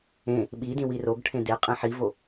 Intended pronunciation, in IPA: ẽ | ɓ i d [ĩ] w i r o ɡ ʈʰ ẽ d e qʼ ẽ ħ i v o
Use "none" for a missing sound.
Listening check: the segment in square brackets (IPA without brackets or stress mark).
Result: ĩ